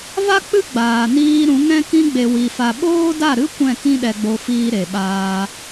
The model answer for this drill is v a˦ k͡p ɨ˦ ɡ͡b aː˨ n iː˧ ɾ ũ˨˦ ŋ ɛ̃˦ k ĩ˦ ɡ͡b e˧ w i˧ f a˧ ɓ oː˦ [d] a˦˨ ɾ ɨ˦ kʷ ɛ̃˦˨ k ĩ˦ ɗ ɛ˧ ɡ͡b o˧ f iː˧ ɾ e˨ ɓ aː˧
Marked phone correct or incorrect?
correct